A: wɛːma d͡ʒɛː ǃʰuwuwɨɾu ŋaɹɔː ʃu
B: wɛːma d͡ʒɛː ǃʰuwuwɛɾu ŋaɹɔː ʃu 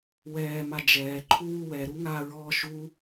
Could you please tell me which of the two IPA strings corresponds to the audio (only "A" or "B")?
B